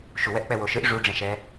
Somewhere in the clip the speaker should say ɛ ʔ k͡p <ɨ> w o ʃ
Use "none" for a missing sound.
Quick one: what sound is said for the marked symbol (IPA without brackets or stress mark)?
ɛ